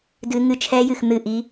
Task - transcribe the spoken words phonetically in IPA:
d ɨ˦˥ ŋ ɨ˦˥ t͡ʃʰ ɛ˦˥ j ɨ˦˨ x n̪ ɨ˦˨ ʔ i˦˥

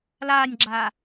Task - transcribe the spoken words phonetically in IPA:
l aː nʲ ɡ͡ǁ aː

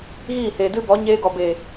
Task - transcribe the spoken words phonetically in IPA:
ɣ iː˦˨ h e˨ d ɨ˦ b ɔ˨˦ ɲ eː˧ ɡ ɔ˨ b eː˨

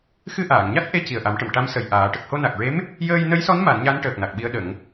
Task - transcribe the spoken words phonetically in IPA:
x ɨ˧ ʔ aː˨˩˨ ŋ ɲ a˦˥ t̚ ʔ e˧˥ c i˨˩ ə̯ ʔ a˨˩˦ m ʈ ə˨˩˨ m ʈ a˧˥ m s ə˨˩ j ʔ aː˨˩˦ ʈ ə˨˩ k̚ h o˧ n a˨˩ k̚ ɹ e˧˥ m | j əː˧ j n ə˧˥ j s ɔ˧˥ n m a˨˩˦ n ɲ a˧˥ n ʈ əː˨˩ k̚ n a˨˩ k̚ ɓ i˧˥ ə̯ ɗ ə˨˩˦ ŋ

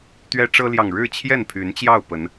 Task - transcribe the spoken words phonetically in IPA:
t̪ ɥ ɛ˦ ʈ͡ʂ ɤ˦ l j ɑ˨ ŋ ɻ ɻ̩˥˨ t͡ɕʰ j ɛ˥˨ n pʰ y˨˦ n t͡ɕ j ɑ˥˨ ʊ̯ p ə˨˦ n

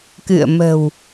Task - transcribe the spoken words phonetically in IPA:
k ɨ̰˧˨ ə̯ m ə̤˨˩ w

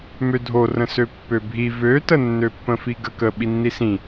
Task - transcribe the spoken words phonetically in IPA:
m ø dʱ o r ə̃ s ø pː ø bʱ i v ø t ə nː ø pː ə̃ f i ɡ ə k ə ɓ i nː i s ĩ

